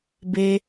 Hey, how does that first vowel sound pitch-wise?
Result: high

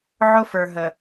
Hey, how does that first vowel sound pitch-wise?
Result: high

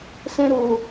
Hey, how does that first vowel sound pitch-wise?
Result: high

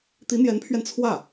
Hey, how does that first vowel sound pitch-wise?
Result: rising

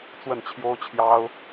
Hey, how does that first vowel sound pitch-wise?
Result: falling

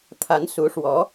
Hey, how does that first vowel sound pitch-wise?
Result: rising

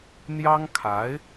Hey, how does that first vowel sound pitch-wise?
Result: high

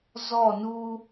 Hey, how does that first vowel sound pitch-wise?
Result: falling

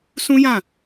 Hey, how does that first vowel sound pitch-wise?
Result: high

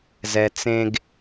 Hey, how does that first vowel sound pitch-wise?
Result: low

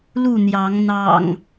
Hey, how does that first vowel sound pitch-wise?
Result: falling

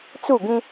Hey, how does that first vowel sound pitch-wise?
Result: falling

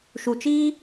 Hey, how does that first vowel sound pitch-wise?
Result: low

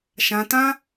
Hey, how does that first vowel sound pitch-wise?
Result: high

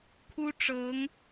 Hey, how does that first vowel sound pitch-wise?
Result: high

